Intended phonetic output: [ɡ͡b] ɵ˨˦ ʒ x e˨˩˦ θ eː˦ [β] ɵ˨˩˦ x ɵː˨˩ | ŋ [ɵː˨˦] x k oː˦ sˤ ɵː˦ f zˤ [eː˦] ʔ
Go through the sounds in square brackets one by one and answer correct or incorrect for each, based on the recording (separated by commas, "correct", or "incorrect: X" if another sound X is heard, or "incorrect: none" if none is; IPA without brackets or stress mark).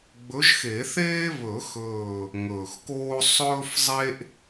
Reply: correct, correct, incorrect: ɵː˨˩, incorrect: e˦